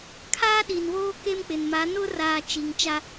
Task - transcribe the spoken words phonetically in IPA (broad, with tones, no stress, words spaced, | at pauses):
kʰaː˦ɗi˨nβoː˦ ke˦mk͡pɪ˨n ma˨˦nʊ˦ raː˨ t͡ʃi˨ŋt͡ʃa˦